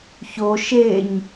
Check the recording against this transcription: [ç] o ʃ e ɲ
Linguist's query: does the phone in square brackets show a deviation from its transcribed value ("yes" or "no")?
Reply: no